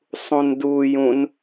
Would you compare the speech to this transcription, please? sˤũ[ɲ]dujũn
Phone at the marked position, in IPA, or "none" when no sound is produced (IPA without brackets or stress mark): n